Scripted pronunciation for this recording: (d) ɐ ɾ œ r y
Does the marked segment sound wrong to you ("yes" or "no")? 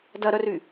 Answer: no